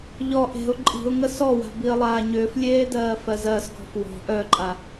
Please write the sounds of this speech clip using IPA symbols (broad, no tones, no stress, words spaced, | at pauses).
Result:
ʎɔ ʔe̤ʊ̯ ǃʼi̤ʊ̯ŋə sɔwa̤ biə̯lˠaːɲʏːflʲeː dɜːfɜzɜsɡɔ̤ fwɔ̤ ʔœǃʼa